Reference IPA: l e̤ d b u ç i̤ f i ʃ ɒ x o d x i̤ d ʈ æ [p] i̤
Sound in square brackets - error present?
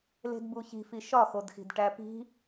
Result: no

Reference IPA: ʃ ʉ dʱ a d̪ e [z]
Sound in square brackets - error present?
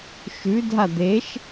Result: yes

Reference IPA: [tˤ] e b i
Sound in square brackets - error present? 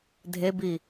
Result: yes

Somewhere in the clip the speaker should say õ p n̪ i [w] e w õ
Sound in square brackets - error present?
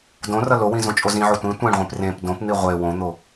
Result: yes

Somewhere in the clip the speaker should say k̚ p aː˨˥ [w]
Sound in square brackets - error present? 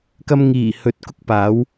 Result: no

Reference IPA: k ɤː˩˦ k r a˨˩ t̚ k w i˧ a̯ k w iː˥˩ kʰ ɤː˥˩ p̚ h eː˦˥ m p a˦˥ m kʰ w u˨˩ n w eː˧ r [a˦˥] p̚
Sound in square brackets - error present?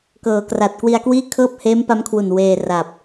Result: yes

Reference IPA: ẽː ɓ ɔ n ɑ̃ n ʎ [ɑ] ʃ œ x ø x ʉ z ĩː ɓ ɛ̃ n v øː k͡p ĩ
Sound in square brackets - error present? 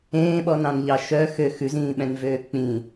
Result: no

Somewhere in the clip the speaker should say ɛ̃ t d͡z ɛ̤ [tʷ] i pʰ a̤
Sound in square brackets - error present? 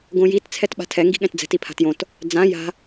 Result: yes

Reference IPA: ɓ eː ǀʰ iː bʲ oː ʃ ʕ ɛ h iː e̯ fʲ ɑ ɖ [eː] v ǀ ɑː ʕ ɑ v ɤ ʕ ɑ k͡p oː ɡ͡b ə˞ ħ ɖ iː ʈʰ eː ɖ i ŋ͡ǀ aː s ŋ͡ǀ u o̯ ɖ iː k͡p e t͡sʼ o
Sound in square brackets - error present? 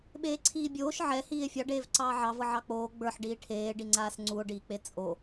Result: no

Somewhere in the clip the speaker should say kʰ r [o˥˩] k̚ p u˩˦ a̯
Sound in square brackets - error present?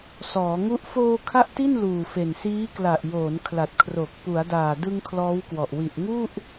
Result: yes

